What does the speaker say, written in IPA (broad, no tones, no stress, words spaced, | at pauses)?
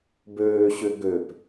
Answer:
bøːɕʏ ɡøp